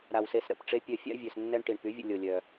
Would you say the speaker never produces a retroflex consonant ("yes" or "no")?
no